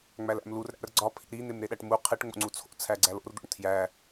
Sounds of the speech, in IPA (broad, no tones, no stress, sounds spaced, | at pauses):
ŋ͡m æ l æ̰ m l u r ɾ æ̰ r ɡ͡ǀ ɒ pʰ ḭ ɾ i n̪ e m ɾ e ɗ æ ʈ m u qʰ e ʈ ŋ͡m o̰ ŋ͡ǀ u t͡sʰ o̰ t͡sʰ æ ɡ͡ǀ æ l o̰ r d̪ o̰ ɳ tʰ j æ